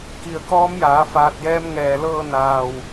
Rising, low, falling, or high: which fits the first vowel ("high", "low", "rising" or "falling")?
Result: low